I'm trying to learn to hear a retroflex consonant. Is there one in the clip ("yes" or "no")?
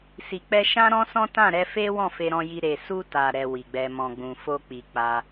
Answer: no